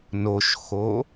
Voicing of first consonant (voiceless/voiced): voiced